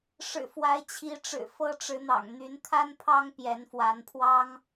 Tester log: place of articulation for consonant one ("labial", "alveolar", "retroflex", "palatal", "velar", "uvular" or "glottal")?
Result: retroflex